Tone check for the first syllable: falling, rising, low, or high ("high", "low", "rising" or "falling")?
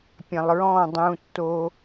low